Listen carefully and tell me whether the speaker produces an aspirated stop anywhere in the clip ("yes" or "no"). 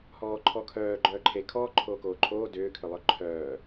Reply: yes